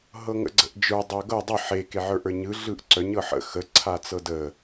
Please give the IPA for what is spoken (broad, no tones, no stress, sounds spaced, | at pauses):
ɦ ɤ ŋ ə̰ ɡ͡ǀ ə̰ ʔ d͡ʒ ə˞ dˤ œ ɡ ɤ dˤ ə ħ e k e ʕ ə˞ ʔ ə˞ ɲ ɯ ɮ ɯ ʔ ǀ œ ɲ ɤ ħ ə̰ x ə ǀʰ a t͡s ɤ d ə